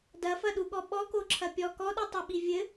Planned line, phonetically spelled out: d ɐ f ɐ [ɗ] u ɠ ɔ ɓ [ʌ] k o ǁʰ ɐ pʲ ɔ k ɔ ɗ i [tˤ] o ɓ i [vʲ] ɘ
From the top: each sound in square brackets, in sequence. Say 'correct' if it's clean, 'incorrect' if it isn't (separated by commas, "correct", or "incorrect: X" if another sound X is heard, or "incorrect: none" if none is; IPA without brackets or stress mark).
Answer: correct, incorrect: ɔ, correct, correct